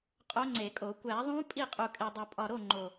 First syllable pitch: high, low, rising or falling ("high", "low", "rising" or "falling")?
rising